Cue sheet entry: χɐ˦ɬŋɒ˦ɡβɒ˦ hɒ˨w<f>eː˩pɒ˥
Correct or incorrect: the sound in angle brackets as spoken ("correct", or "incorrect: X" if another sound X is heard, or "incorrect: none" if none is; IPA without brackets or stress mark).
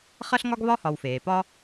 correct